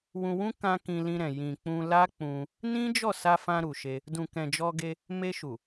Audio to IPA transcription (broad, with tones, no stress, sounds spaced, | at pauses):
w ũ˧ w ũ˦ k ã˧ k ĩ˧ l ĩ˧ ɾ ɛ̃˨ j ĩ˨ k͡p ũ˧ l a˦ k͡p ũ˧ | n ĩ˦ d͡ʒ ɔ˦˨ s a˧ f ã˧ ɾ u˨ ʃ e˧ | d ũ˨ k ɛ̃˨ d͡ʒ ɔ˧ ɡ e˧ | m e˧ ʃ u˨